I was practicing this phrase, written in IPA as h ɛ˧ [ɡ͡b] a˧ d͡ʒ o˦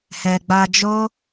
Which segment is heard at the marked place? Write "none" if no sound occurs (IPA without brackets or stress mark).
ɡ͡b